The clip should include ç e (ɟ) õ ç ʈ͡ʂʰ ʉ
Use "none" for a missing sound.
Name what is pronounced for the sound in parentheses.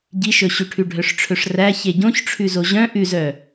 ɟ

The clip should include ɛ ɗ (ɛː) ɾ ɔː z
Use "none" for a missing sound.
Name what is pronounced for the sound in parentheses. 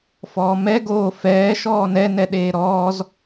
eː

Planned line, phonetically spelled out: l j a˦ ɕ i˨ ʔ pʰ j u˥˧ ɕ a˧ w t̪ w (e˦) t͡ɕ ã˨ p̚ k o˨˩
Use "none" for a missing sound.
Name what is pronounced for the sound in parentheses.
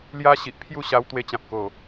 e˧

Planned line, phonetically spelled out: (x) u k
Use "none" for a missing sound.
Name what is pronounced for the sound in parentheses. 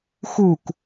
x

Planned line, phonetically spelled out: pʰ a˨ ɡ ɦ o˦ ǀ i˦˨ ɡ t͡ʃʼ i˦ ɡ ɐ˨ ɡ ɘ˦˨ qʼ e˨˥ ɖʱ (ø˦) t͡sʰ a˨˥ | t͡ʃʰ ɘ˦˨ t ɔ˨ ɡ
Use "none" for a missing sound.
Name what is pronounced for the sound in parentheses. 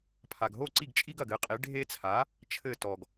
e˦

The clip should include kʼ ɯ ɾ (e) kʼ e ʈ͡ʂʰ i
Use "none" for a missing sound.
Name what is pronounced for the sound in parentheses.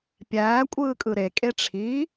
e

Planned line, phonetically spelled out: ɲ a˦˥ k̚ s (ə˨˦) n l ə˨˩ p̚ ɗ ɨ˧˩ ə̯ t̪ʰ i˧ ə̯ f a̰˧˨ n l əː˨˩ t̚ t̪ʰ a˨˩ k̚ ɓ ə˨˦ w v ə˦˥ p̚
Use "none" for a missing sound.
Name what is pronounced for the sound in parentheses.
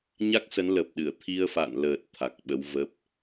ə˨˦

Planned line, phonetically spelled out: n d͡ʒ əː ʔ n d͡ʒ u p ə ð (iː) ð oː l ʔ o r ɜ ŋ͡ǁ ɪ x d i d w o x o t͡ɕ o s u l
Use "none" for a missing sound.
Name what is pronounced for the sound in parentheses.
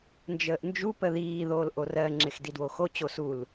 iː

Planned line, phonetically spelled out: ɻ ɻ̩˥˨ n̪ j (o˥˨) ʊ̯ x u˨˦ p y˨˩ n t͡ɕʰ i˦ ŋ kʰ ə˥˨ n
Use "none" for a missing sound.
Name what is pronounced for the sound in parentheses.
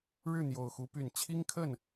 o˨˩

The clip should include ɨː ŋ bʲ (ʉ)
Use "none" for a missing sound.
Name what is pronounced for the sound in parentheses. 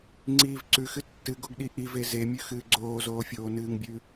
ʉ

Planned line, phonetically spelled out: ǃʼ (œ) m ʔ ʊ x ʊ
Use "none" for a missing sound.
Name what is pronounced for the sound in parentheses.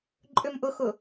ø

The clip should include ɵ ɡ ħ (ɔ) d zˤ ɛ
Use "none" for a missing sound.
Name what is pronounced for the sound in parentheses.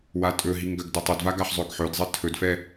ɵ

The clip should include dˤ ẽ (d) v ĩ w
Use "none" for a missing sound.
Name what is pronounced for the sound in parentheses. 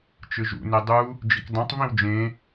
tˤ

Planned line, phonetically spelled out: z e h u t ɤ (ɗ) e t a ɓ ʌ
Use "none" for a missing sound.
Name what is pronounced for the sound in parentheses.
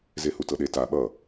ɗ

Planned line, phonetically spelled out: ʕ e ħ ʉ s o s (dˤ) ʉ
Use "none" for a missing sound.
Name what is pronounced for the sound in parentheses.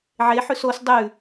dˤ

